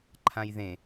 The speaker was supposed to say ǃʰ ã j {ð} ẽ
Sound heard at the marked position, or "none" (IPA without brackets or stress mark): ð